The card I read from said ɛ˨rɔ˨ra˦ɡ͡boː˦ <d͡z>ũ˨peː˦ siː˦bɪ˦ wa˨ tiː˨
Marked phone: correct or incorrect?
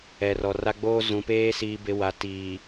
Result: incorrect